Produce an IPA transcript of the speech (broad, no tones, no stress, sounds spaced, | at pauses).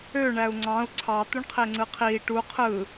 ø ɳ æ u̯ ŋ͡ǀ ɑ̃ u̯ ǀʰ ɑ t̪ u ɳ qʰ e ŋ͡ǀ ɯ qʰ iː ʈ u qʰ ɯ